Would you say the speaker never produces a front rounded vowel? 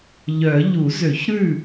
no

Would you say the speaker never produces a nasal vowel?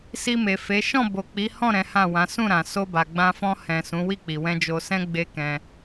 no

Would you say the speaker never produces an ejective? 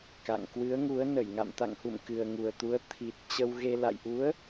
yes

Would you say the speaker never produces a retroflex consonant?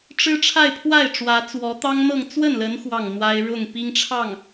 no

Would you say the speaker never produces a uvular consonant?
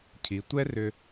yes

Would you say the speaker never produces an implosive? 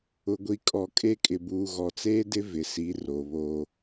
yes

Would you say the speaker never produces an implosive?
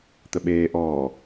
no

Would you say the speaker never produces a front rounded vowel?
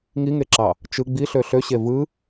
no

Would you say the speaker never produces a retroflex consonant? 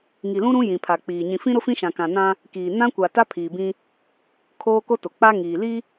yes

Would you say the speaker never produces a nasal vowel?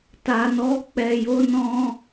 no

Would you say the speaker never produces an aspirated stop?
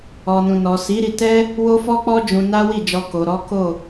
yes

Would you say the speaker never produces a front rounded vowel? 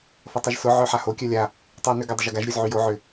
no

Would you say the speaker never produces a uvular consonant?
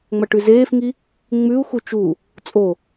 yes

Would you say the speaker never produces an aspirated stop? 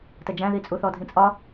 yes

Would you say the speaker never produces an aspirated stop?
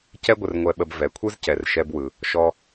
no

